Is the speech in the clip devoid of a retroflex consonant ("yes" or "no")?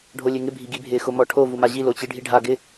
no